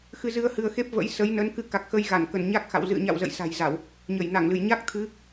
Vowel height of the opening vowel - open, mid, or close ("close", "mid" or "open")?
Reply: close